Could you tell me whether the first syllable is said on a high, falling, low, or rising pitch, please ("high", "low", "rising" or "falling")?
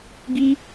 high